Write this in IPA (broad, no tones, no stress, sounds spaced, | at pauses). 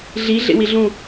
ɮ i ɮ ḛ w i ɮ ũ